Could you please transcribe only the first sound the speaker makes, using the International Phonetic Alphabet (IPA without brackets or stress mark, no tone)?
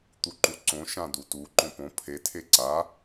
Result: t̪